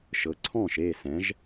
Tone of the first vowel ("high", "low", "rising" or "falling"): rising